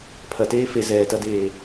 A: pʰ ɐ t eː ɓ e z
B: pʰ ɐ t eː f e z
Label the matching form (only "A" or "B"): B